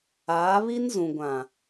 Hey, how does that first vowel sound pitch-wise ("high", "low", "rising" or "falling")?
rising